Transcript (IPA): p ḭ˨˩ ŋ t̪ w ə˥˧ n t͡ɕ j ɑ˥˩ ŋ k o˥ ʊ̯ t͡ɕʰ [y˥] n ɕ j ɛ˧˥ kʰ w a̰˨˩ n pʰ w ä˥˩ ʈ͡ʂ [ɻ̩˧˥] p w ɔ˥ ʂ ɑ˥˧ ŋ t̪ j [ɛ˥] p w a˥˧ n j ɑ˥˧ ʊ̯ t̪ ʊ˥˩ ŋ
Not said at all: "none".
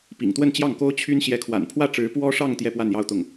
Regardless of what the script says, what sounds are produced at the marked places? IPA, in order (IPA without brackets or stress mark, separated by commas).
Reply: y˥, ɻ̩˧˥, ɛ˥˧